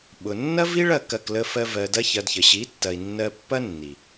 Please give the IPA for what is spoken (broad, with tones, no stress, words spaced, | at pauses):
ɓʊ˨ nːɐ˦vi˦ɭɐ˦˨ kɐ˦˨klə˦fɜ˦ vɜ˧dɐ˦çɐ˧dçə˨ ɕi˨˦tːɐ˨i̯ nːɜ˧pːɐ˦ nːi˨